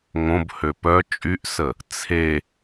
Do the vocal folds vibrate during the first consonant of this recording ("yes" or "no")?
yes